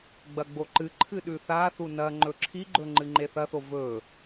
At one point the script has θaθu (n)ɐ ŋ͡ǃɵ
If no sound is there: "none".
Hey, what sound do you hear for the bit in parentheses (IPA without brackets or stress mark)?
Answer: n